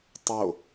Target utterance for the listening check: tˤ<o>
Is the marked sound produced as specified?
yes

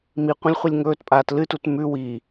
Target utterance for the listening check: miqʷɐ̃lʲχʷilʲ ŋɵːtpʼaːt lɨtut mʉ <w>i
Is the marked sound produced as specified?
yes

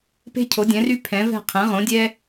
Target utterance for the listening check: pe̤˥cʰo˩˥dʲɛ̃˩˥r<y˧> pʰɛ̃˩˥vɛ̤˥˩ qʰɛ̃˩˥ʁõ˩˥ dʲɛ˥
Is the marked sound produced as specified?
no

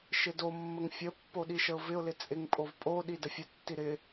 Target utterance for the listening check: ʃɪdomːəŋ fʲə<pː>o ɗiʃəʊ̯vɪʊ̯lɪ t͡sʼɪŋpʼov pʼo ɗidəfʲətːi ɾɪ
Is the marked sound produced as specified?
yes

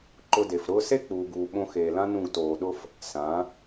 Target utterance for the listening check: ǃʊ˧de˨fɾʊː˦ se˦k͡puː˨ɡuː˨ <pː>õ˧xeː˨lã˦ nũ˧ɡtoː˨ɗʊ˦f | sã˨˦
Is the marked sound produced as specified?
no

